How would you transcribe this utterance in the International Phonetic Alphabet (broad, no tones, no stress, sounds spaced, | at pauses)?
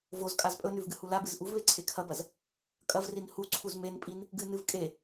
v o z kʼ a z pʼ ɵ n ʉ v ɡ ɨ h u l a b ɨ z ʔ u v β e ǀʰ e kʰ ɐ b ɐ z | kʼ ɐ v r i n h u ǀʰ u z m e n pʼ i n | ɡ ɨ n ɨ v kʼ e